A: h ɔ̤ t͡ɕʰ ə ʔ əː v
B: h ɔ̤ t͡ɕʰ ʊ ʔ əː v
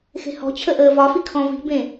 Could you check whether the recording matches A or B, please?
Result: A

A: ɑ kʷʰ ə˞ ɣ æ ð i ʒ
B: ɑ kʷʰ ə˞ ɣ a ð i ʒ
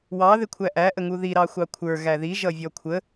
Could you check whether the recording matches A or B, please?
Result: A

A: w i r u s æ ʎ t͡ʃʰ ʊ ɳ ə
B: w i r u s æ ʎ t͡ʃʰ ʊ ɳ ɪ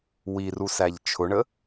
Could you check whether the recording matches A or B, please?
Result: A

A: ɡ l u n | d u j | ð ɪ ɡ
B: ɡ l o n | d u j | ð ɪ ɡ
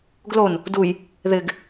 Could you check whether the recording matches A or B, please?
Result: B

